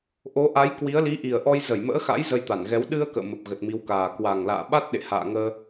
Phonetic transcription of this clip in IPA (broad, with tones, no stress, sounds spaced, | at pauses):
ʔ o˨˦ ʔ a˨˦ j k w i˨˦ ə̯ l i˨˦ ʔ i˨˩ ə̯ ʔ ɔ˧ j z ə˧˩ j m ə̰ː˧˥ x a̰˧˥ j z ə˧ j t̪ a˧˩ n ɣ ɛ˨˦ w ɗ ɨ˧ ə̯ k ə̰ː˧˨ m ə˨˩ p̚ ɣ ə˨˩ t̚ m i˨˦ w k aː˨˩ k w a˨˩ ŋ l a̰ː˧˨ ɓ a˦˥ t̚ ɗ ḛ˧˨ h a̰ː˧˨ ŋ əː˧